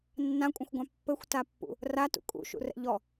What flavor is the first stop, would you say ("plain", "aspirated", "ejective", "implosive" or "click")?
ejective